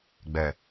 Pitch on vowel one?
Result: low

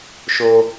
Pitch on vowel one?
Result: high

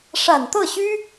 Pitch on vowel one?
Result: low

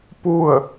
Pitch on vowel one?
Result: falling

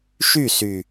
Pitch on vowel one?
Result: falling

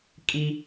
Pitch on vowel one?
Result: high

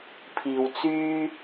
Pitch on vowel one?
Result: low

